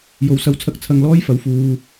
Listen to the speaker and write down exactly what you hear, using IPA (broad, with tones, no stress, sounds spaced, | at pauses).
j o˨˥ w s ɐ˨˧ w t͡sʰ ɐ˧ k̚ t͡sʰ ɐ˧ ŋ l ɔː˥ j f ɐ˨˧ w f uː˨